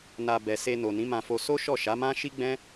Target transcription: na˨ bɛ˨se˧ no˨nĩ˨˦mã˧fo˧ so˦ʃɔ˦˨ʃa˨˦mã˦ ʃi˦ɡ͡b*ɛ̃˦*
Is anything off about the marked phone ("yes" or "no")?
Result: no